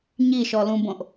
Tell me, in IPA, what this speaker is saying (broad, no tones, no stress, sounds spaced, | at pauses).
ɲ i ʃ ɔ l ũ b õ ʔ